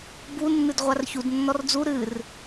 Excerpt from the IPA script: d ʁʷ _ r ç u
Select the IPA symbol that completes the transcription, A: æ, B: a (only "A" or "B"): B